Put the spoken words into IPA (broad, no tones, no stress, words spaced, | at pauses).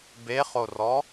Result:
beχorɔ